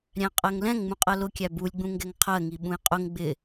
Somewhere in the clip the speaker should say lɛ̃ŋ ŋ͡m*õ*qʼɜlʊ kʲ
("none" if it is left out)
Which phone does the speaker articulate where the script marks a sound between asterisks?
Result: ũ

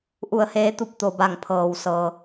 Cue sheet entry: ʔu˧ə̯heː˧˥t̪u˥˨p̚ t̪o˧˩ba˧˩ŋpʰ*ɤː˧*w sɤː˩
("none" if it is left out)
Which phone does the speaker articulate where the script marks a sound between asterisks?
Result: ɤː˩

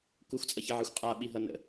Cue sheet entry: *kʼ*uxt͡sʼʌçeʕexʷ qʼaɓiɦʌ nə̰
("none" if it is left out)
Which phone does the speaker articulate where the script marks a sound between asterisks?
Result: k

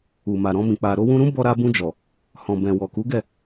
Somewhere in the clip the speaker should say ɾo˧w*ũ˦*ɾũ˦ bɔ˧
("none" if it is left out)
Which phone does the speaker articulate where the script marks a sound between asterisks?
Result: ũ˧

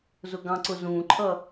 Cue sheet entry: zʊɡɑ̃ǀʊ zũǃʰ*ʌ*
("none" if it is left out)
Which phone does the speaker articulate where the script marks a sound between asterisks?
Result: ʌ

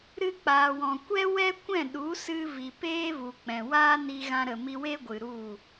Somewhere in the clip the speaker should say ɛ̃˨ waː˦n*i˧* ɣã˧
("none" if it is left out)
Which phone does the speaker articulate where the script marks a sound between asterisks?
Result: i˧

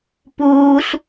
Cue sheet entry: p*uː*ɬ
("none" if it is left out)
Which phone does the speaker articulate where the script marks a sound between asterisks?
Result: uː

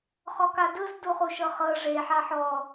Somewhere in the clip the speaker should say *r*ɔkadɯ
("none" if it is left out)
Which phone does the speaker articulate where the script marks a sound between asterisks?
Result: χ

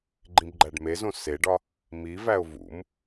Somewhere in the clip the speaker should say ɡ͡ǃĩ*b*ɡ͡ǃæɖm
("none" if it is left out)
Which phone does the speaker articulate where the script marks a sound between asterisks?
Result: b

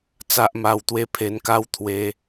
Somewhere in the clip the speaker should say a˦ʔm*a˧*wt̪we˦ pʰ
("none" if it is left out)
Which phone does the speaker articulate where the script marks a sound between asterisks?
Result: a˧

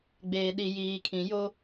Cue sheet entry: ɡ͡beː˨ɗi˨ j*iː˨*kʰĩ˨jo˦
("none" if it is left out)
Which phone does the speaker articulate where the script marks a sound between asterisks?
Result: iː˨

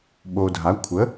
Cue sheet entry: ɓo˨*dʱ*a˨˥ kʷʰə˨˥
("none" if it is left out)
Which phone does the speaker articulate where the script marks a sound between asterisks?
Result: dʱ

